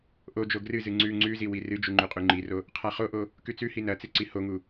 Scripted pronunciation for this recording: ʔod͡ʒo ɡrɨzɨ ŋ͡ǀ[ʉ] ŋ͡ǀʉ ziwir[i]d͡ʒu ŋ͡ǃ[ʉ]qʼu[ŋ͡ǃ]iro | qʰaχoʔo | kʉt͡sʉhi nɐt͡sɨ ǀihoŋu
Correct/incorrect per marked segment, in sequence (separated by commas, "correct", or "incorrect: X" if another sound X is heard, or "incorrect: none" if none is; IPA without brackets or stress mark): correct, incorrect: ɨ, correct, correct